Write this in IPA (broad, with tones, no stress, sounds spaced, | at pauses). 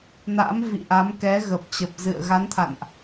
n a̰ː˧˥ m v ḭ˧˨ ʔ a˨˦ m k ɛ˨˦ ɣ ə˨˩ p̚ t͡ɕ ə˨˩ p̚ z ɨ̰˧˨ ə̯ ɣ a˨˦ n t̪ʰ a̰˧˨ n ʔ